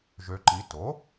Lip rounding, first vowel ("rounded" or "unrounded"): rounded